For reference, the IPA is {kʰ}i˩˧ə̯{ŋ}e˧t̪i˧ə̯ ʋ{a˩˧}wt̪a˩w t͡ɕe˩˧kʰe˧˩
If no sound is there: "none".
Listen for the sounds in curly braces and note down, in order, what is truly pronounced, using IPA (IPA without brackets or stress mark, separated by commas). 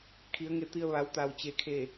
kʰ, ŋ, a˩˧